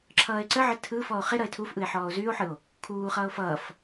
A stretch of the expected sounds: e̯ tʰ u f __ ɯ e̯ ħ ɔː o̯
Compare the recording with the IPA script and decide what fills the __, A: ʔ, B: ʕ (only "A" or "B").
A